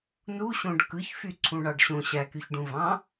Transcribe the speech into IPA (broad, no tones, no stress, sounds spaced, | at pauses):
n u ɕ õ ɖ k ɯ ç f y ǀʰ ũ ɳ ɑ ɖ ɕ õ ɕ æ k y ç ɖ ũ v ɑ̃